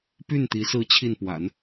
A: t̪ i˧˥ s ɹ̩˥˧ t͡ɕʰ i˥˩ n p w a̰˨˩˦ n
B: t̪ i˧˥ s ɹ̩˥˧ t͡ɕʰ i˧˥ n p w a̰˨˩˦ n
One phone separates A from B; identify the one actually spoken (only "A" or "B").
A